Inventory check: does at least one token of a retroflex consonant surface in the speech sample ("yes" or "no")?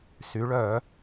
yes